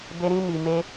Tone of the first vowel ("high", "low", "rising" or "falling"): high